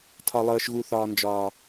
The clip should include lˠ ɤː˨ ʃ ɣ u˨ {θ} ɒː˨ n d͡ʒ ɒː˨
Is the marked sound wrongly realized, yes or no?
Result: no